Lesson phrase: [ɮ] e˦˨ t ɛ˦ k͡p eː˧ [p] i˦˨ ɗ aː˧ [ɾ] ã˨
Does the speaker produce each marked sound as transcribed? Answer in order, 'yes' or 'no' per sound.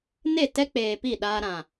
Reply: no, yes, yes

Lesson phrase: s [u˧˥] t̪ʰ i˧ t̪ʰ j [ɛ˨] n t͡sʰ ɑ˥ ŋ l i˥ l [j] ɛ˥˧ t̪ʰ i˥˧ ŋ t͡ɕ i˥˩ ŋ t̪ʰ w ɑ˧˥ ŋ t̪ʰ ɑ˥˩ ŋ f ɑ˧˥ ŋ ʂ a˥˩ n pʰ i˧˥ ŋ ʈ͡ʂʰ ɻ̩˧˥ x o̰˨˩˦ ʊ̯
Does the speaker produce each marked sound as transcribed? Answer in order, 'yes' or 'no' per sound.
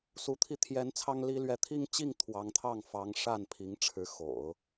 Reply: yes, no, no

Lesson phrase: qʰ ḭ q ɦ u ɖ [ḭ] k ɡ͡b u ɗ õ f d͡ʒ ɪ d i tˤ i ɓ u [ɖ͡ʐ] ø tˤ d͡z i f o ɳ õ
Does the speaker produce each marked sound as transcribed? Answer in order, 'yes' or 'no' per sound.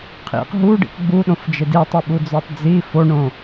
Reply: yes, no

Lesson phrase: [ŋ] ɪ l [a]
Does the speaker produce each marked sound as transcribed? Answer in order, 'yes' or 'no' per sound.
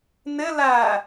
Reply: no, no

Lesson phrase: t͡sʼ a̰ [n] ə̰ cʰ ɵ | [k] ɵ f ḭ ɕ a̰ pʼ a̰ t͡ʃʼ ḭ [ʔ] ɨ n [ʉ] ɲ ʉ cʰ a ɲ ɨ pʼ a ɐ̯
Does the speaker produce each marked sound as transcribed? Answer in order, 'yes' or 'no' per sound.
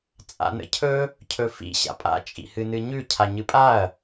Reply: yes, no, no, no

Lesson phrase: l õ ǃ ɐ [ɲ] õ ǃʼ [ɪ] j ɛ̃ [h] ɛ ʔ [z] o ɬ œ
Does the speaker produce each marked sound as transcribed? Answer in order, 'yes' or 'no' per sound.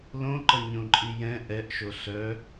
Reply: yes, no, no, no

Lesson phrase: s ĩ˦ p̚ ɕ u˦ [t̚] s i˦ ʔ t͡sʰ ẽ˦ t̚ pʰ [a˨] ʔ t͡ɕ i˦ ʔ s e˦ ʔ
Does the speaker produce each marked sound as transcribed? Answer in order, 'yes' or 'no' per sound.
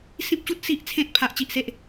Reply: yes, no

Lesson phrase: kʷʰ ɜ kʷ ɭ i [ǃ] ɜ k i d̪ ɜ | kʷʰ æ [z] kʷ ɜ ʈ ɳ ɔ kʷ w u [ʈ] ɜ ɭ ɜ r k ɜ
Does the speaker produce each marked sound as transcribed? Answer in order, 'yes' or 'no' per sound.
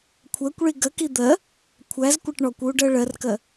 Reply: no, yes, no

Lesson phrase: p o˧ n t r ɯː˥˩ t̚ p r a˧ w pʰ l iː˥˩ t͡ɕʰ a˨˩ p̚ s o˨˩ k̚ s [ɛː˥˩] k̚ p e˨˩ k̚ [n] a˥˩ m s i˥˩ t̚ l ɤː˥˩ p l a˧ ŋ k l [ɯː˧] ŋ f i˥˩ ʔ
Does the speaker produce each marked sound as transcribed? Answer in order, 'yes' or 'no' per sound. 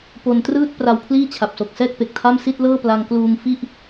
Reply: yes, no, no

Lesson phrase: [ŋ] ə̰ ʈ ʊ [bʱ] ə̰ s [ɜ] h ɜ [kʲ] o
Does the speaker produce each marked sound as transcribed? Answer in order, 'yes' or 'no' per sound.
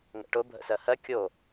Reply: yes, yes, yes, yes

